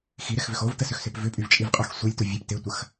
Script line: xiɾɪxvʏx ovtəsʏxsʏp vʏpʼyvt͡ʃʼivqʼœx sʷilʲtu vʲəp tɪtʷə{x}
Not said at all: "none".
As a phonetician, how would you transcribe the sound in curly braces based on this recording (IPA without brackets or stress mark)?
x